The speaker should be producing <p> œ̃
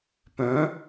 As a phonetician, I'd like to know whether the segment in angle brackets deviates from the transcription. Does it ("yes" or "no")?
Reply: no